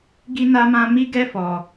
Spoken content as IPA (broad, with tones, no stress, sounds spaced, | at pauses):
ɡ i˦ n a˦ m ã˦ m i˦ ɡ ɛ˦ f ɔ˧